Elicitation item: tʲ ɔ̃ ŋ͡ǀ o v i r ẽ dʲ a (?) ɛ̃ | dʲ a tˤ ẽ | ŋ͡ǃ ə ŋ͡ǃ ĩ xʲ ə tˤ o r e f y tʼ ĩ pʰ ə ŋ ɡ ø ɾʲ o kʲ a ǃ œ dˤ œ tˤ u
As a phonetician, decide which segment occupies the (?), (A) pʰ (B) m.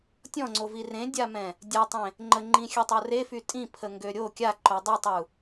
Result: B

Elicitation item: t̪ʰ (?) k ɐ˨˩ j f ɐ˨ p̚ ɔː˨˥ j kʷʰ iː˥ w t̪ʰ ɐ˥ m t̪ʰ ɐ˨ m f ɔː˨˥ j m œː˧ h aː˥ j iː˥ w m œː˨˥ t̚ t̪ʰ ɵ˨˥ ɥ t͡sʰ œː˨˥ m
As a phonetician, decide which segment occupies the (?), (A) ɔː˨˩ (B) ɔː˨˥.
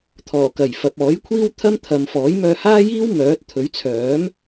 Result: A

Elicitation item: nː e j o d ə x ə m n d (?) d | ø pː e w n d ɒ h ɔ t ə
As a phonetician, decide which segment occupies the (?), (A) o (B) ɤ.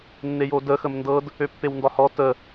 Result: B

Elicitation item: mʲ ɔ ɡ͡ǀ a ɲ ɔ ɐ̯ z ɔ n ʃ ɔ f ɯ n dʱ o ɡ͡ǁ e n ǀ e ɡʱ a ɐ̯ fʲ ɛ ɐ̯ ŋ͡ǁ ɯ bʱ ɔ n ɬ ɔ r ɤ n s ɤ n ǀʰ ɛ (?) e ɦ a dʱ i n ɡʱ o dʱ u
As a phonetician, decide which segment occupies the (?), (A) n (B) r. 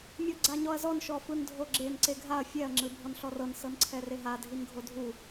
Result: B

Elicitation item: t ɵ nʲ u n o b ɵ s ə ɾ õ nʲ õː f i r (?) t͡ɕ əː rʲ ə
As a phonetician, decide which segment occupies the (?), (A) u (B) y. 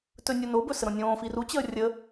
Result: A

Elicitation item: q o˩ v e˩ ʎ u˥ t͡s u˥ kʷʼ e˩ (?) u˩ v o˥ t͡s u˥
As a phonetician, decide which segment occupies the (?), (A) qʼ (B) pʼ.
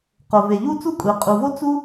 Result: A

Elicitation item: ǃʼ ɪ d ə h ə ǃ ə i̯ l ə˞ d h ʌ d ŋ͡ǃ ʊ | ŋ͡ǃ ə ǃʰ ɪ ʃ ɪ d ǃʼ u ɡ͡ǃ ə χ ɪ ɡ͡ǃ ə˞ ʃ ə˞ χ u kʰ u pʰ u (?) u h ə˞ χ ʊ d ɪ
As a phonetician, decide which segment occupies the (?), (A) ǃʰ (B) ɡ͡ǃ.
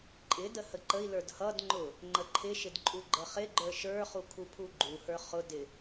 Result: B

